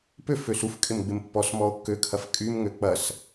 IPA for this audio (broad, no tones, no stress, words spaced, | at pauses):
pøf øsufkʼɪm ɡ͡bɪmpːɔsmɔo̯ kːøkʰɐf kʼymŋø k͡pɐs